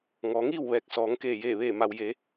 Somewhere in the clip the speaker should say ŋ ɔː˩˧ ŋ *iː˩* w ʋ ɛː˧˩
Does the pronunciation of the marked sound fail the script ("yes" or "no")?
yes